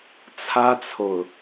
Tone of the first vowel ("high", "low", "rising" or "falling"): high